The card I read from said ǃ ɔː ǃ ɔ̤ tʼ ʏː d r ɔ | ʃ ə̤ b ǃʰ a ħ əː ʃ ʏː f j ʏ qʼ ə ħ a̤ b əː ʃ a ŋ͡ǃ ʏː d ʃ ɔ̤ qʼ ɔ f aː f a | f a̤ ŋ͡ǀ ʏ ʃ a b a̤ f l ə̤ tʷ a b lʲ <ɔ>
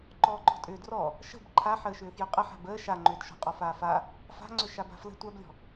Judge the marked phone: incorrect: ɔ̤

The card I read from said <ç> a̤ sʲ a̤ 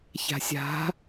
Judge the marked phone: correct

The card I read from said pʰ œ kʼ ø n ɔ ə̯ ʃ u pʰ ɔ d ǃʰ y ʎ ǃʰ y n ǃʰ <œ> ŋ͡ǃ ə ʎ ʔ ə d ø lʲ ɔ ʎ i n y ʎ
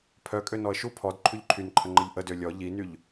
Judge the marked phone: incorrect: ə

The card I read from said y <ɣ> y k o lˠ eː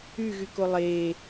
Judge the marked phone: correct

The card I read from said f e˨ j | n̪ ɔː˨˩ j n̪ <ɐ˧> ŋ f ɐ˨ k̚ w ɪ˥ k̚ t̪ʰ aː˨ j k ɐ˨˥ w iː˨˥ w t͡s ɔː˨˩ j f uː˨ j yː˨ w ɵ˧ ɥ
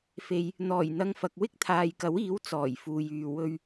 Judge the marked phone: correct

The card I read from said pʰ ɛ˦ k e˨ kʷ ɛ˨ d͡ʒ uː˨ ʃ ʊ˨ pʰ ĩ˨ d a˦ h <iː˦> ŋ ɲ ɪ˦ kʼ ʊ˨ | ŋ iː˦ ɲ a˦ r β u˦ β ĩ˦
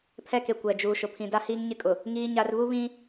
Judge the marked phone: correct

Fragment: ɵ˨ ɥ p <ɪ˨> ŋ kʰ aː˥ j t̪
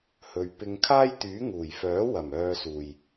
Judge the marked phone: incorrect: ɪ˧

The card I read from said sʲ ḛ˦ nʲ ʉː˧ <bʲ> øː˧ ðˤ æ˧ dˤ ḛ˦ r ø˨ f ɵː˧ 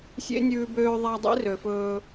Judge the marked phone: incorrect: b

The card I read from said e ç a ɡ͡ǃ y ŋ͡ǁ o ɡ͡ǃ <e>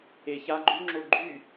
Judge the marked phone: incorrect: y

